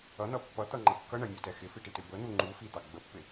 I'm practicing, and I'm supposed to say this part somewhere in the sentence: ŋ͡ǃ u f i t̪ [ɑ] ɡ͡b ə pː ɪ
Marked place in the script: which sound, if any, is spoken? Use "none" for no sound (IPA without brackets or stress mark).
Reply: ɑ